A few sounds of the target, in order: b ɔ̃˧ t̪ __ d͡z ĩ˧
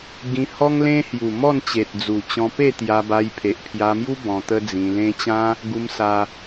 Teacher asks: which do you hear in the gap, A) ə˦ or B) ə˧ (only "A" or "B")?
A